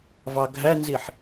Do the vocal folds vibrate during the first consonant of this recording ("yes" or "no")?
yes